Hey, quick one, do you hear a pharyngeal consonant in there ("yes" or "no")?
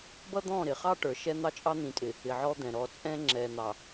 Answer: yes